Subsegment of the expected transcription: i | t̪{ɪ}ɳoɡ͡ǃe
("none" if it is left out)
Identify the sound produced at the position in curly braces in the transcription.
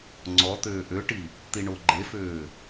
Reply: i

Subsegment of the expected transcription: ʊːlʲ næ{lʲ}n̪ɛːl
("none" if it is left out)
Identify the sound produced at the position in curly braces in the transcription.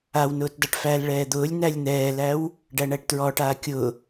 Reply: lʲ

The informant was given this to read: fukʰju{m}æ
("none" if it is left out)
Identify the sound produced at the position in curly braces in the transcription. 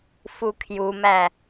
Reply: m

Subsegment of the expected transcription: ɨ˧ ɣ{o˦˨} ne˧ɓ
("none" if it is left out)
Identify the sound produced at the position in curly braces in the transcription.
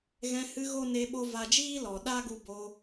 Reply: o˦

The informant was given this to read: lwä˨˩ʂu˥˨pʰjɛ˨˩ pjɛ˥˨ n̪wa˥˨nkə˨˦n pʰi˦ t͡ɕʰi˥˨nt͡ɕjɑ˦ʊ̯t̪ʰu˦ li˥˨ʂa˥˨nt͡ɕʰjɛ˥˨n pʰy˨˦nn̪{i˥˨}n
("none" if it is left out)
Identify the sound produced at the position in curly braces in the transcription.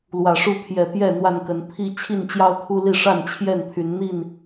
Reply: i˥˨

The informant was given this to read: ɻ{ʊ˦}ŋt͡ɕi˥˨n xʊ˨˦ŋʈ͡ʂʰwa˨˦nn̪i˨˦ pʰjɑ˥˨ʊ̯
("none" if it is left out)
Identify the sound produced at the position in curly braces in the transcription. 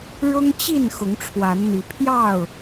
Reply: ʊ˦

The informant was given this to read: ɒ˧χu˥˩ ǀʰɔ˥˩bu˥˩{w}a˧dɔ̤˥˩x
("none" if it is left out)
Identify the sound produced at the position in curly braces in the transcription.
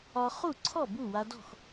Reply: w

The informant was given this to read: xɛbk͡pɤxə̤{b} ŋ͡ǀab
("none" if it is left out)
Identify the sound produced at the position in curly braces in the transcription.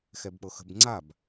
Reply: b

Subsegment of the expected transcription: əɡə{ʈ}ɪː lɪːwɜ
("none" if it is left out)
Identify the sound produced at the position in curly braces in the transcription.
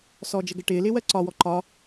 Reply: ʈ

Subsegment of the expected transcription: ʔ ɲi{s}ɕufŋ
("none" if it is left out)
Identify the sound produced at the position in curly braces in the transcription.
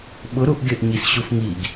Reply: s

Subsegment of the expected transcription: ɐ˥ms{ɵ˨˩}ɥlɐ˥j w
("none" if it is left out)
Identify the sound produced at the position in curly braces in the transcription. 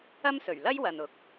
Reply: ɵ˨˩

